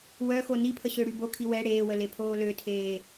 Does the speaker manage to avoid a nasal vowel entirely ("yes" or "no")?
yes